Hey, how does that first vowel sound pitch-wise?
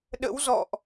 rising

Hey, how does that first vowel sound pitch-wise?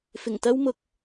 low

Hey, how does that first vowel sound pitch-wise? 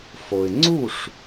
low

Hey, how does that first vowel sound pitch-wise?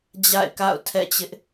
falling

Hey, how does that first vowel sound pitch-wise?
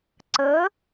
rising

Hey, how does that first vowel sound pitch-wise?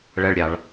high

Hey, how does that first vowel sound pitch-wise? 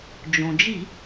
low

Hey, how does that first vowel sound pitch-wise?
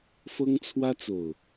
high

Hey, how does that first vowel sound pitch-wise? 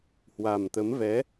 low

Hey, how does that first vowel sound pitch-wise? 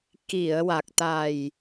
low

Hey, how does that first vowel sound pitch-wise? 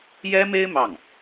high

